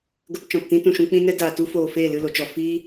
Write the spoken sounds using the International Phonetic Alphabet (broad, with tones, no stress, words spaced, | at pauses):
ɡə˧p t͡ʃɔ̃˨ptĩ˦tũ˨ʃũ˧ k͡pĩ˦nɛ˦ daː˨tu˦foː˨ feː˦˨lɨ˦˨lo˨t͡ʃɔ˨ fi˦